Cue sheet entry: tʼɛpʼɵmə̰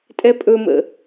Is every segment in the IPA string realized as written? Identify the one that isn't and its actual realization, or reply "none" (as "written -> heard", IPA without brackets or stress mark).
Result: none